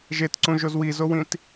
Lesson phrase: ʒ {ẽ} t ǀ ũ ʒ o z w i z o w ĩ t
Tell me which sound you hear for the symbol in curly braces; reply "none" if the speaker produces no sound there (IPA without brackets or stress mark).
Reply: e